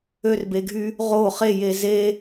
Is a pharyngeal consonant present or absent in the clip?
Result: absent